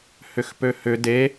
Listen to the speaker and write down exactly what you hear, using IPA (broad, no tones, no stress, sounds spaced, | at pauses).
h ʏ x p ø h ʏ d e